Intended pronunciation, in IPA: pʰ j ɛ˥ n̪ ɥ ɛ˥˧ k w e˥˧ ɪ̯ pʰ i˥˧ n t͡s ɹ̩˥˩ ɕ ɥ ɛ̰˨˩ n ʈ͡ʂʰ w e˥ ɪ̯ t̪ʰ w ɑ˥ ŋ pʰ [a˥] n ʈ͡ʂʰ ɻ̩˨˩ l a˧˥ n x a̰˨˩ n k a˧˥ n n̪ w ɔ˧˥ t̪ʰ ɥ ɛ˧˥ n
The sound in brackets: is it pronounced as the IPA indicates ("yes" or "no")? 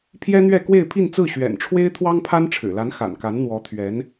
yes